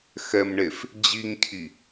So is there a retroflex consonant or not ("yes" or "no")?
yes